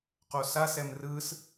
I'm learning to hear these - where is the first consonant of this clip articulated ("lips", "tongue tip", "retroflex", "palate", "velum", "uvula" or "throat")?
uvula